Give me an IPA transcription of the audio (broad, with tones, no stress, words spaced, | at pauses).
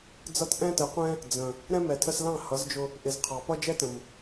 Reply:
d͡zʌ˧t ʔɛ̃˦ tə˨˦qʷɛ̃˦ | d͡zə̃˨ | ɾɛ̃˦mɛ˨tʰə˧slɑ̃˦˨ hʌ˨˦zd͡ʒʊ˧ | ʔɪ˨zqʰɑ˨ pʌ˦d͡ʒɛ˦tə̃˨m